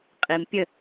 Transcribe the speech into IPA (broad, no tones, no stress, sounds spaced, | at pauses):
qʼ i m pʲ ə